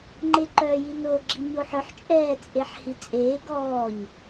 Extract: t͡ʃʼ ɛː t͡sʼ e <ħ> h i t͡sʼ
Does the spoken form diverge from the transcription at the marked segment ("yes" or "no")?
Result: no